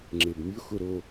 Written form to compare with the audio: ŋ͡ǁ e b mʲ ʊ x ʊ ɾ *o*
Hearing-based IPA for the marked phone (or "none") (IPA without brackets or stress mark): o